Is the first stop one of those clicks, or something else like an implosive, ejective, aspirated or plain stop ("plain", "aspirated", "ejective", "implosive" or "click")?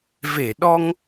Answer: implosive